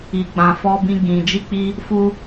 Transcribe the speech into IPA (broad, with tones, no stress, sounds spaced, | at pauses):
i˧ ɡ͡b ã˧ f ɔ˦ b ĩ˦ ɡ ĩ˧ d͡ʒ i˦ k͡p i˦ | f u˦